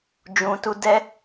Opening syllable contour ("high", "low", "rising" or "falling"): low